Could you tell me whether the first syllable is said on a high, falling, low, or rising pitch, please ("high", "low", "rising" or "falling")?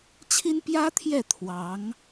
high